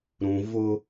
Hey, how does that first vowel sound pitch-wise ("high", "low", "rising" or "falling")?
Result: low